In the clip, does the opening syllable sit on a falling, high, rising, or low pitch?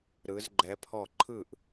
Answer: rising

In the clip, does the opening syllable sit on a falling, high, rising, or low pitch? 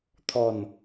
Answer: low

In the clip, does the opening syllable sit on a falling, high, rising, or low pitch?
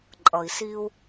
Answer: low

